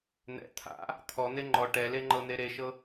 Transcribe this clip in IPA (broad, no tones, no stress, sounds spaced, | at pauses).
n̪ ɛ̰ t̪ʰ a̰ | t̪ʰ ɔ n̪ e ŋ͡ǃ ɔ ʈ ɛ l e ŋ͡ǃ ɤ n̪ e ɾ e ʃ ɤ